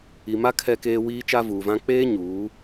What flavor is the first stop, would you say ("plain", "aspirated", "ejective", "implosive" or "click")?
aspirated